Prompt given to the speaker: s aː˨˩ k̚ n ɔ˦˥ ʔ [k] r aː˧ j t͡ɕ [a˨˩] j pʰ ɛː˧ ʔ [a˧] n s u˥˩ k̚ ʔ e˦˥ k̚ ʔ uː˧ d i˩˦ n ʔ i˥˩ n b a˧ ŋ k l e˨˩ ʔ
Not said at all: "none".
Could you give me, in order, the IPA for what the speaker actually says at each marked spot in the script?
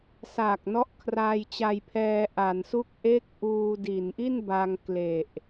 kʰ, a˧, a˩˦

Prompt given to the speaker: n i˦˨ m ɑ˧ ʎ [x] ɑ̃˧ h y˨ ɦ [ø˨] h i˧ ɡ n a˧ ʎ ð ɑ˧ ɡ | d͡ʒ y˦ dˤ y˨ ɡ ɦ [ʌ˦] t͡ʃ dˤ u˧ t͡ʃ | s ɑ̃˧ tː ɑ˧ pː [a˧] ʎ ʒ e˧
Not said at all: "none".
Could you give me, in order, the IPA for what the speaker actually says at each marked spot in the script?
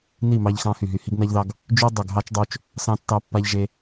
x, y˨, ɑ˦, a˧

